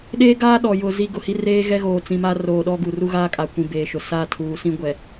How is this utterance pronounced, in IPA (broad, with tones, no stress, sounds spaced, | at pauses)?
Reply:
ɗ eː˦ ɡ aː˦ ɗ ɔ˨ j ʊ˨ z i˦˨ ɡ ʊ˨ h i˦ r eː˦ ɣ ɛ˦ ɣ oː˨ t͡s ĩ˨ m a˦ r oː˨ ɗ ɔ˦ ɡ u˨ r u˦ ɣ aː˦ kʼ a˨ kʷ ĩ˨ b eː˨ ʃ ʊ˨ s a˦˨ tʰ uː˨ s ĩ˦ ɡʷ ɛ˨